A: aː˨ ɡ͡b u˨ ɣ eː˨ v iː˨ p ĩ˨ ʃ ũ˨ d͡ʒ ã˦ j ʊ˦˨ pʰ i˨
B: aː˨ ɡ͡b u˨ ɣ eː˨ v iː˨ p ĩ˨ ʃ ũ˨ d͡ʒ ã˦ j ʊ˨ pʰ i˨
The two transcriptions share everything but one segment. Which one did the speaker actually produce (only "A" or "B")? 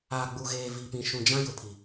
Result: B